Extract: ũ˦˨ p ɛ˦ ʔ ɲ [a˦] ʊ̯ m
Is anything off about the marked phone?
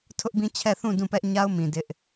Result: no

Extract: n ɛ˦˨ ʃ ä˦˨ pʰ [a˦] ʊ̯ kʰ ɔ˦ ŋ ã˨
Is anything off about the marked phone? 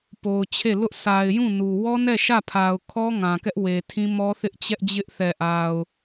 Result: yes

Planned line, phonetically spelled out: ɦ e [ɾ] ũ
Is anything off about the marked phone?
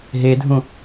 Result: yes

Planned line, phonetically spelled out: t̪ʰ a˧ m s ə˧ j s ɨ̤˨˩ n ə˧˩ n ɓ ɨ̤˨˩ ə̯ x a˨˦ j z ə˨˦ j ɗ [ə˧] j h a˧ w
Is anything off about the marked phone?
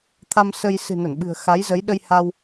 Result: no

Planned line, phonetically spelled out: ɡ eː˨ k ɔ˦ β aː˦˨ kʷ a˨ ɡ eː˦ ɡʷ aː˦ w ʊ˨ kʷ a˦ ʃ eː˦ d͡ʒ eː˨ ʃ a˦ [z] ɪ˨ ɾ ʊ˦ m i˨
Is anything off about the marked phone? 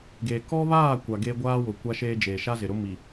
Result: no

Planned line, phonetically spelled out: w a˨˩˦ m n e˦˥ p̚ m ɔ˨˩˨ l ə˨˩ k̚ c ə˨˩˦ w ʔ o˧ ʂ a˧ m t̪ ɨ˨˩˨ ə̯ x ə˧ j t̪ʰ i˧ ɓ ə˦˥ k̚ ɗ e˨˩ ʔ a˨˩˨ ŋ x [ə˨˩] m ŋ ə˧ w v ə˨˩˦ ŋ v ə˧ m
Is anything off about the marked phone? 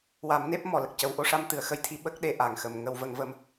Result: no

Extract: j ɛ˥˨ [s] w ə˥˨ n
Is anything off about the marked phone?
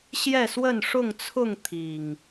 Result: no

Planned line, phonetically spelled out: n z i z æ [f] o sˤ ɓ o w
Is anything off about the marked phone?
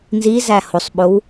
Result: yes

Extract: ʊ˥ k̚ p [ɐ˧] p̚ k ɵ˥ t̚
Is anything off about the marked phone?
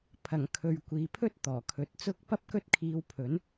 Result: yes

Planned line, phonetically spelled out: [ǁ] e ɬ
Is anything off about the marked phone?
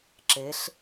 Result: no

